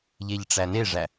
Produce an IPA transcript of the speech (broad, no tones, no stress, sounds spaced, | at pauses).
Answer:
ʎ e ʎ ʈ͡ʂ æ n e ʐ æ